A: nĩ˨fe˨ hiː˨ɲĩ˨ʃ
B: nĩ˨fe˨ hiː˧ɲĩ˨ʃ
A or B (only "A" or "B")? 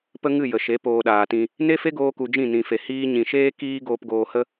B